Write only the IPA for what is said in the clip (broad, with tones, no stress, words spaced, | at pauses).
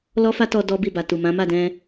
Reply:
lɔ˦fa˦tɔ˧ dɔ˦bi˦˨ ba˨tu˨ mã˨˦ ma˦˨dɛ̃˧